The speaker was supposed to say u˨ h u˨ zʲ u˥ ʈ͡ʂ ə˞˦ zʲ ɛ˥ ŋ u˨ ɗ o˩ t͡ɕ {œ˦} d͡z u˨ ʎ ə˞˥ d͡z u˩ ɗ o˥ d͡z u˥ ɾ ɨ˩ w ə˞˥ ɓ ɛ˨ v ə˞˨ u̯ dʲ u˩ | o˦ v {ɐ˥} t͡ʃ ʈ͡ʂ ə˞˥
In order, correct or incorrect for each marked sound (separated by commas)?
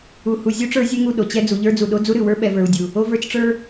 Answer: incorrect, incorrect